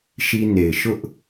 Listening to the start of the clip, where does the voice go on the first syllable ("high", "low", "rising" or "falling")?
high